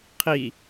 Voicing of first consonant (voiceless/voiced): voiceless